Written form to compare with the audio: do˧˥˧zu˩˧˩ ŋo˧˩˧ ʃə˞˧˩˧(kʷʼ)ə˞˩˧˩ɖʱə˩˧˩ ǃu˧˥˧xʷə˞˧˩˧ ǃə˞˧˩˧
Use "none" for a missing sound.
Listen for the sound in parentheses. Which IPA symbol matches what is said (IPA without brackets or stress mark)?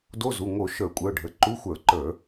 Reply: kʷʼ